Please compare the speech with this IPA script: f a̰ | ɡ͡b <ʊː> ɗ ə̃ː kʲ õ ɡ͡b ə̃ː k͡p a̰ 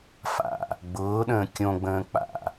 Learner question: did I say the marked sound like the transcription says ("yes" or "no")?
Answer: yes